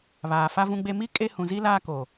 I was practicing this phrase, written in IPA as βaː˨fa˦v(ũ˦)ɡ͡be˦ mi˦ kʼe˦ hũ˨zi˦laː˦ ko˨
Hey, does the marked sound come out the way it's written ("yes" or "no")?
yes